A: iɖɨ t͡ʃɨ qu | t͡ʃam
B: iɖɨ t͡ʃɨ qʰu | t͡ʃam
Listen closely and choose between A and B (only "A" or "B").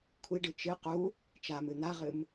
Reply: A